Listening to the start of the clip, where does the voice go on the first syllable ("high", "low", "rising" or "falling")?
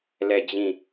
falling